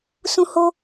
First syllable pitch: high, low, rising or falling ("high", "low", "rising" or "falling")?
high